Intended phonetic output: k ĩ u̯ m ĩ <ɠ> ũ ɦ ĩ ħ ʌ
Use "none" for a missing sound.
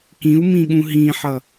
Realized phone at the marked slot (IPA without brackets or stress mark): ɠ